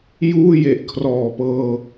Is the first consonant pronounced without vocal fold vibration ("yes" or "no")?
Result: no